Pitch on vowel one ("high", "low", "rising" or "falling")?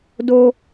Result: high